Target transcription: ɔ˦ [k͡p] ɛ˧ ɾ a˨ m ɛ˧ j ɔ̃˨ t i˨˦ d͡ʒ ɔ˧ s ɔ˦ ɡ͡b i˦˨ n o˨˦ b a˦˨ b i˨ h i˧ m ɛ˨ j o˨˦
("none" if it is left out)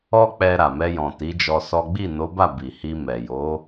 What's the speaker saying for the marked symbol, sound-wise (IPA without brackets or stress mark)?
k͡p